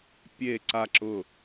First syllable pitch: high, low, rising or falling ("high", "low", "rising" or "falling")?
falling